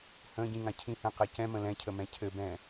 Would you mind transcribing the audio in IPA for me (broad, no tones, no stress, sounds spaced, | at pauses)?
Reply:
h ə̃ ɟ ĩ ŋ ã cʰ ĩ h ɛ̃ q ɛ c ɛ̃ m ə̃ l ɛ̃ cʰ ə m ɛ̃ cʰ ɘ b ɛ̃